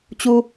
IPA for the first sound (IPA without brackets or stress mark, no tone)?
t͡ɕ